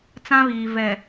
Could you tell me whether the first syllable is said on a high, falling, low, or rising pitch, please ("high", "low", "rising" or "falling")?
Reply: high